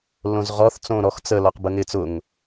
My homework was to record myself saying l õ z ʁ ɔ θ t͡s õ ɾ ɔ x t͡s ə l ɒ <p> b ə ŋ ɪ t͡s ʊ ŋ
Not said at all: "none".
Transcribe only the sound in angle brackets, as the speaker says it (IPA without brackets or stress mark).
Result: q